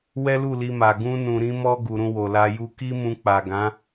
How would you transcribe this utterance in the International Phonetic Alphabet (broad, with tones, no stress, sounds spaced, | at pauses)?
w ɛ˦ l u˦˨ l i˧ m a˨ ɡ ũ˧ n ũ˨ ɾ ĩ˧ m ɔ˧ ɡ u˨ ɾ ũ˧ w o˨ l a˧ j u˧ k i˦ m ũ˧ k͡p a˨ ɡ ã˨˦